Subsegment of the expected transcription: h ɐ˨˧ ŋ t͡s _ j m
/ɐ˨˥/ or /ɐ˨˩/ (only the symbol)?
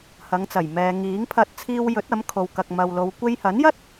ɐ˨˩